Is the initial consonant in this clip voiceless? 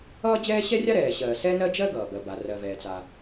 no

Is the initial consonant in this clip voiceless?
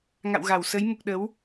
no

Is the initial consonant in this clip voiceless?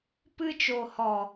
yes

